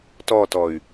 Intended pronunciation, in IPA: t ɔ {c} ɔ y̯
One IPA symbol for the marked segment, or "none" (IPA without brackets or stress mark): t